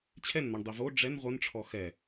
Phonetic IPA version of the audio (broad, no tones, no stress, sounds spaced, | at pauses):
t͡ɕʰ ɛ n n̪ ɔ ɳ dˤ i v o ɖ͡ʐ ɛ n ʁʷ ʌ n ʈ͡ʂʰ ɔ x ɛ